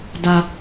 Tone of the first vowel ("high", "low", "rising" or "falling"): low